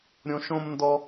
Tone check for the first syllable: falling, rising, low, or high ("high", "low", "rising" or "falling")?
high